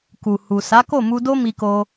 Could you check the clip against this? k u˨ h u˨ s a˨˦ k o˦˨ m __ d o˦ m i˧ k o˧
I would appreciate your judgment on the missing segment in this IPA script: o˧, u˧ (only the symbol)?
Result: u˧